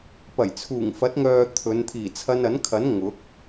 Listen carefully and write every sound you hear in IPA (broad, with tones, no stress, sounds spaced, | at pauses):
p ɐ˨˩ j t͡sʰ uː˨˩ ŋ f ɐ˨˥ t̚ ŋ œː˨ t̪ʰ ɵ˨˧ n t̪ʰ iː˨˩ t͡sʰ ɐ˧ n ɐ˨˥ n kʰ ɐ˨˥ n ŋ ʊ˨˥ k̚